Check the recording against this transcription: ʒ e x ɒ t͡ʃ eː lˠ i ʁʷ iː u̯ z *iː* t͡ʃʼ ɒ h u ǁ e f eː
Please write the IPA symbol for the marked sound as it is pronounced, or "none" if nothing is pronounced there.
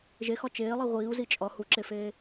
i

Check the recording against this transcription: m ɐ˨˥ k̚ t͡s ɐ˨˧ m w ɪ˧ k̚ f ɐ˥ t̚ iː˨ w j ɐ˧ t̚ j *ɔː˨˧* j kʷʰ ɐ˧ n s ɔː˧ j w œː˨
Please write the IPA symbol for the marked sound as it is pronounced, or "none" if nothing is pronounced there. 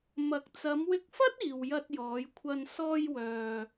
ɔː˨˧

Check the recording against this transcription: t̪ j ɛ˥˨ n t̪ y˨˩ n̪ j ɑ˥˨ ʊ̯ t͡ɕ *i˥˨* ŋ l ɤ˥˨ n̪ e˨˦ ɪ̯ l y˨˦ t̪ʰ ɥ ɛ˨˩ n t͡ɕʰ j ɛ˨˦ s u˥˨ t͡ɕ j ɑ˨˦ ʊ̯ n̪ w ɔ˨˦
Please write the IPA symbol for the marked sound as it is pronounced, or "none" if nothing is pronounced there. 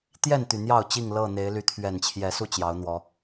i˥˨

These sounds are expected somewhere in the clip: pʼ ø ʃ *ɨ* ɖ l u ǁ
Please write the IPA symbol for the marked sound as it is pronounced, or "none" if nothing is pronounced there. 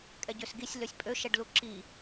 ɛ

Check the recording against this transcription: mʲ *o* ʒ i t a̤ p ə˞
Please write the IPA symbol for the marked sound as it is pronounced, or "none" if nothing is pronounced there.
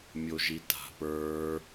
o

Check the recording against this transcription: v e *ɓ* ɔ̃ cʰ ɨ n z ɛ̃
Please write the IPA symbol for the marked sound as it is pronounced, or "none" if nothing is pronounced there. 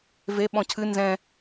ɓ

